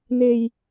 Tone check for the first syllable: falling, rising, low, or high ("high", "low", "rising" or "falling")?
low